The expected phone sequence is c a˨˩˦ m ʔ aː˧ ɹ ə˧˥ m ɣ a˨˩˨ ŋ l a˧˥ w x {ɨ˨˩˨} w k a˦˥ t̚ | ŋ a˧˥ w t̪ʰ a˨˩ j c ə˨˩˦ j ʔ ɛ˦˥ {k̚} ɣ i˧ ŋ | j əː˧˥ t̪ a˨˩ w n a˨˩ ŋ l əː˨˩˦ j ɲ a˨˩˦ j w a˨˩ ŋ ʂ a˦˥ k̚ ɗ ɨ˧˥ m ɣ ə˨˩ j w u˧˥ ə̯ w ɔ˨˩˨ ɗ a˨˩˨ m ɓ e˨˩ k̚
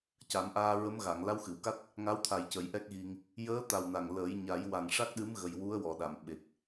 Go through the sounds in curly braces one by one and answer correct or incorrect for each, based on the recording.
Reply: correct, correct

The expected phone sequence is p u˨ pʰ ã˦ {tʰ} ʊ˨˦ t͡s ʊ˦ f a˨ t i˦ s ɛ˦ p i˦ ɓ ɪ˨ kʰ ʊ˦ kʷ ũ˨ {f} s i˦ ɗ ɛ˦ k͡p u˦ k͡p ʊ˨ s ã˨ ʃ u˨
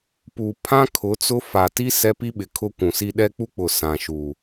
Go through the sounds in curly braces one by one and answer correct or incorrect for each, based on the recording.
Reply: incorrect: kʰ, incorrect: none

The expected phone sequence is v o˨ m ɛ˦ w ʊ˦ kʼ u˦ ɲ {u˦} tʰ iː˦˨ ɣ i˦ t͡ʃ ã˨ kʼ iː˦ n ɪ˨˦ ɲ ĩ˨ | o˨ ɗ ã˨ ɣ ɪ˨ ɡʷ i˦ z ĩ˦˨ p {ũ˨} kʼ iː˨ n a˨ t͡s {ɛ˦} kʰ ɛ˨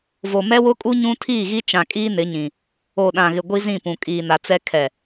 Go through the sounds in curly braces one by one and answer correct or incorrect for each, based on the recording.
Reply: incorrect: ũ˦, correct, correct

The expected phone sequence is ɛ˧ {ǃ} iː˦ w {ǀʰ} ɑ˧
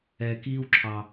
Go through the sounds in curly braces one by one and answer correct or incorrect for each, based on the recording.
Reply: incorrect: k, incorrect: ǁʰ

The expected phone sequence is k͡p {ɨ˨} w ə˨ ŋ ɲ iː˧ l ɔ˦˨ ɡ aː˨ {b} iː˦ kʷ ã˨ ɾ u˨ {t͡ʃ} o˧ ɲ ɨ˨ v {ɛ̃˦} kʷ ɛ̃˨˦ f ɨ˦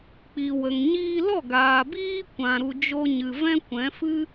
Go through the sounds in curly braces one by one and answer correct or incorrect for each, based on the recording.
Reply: incorrect: i˨, correct, incorrect: d͡ʒ, correct

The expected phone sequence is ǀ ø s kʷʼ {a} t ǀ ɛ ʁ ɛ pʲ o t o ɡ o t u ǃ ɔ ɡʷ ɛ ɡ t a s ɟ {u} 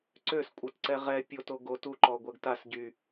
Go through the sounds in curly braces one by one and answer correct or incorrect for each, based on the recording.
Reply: incorrect: ə, incorrect: y

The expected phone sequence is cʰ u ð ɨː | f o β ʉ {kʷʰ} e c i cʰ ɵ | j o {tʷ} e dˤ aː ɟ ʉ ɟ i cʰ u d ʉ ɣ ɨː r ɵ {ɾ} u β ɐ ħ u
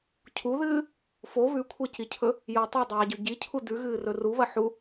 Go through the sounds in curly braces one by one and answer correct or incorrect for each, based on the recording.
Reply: correct, incorrect: tˤ, incorrect: r

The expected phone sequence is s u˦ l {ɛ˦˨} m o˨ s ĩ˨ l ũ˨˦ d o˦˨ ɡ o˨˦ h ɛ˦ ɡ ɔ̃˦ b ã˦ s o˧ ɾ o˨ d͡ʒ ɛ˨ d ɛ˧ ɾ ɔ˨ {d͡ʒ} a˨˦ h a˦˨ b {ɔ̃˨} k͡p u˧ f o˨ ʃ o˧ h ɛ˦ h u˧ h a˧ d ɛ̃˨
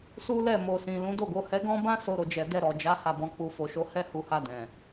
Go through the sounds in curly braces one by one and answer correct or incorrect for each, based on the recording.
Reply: correct, correct, incorrect: ɔ̃˨˦

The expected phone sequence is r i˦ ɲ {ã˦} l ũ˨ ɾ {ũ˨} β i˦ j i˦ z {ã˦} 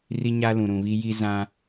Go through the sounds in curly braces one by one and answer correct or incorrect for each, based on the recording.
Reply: incorrect: a˦, correct, correct

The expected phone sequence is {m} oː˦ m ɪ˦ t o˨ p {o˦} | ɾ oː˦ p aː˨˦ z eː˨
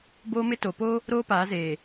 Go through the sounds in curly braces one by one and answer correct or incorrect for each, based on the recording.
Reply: incorrect: b, correct

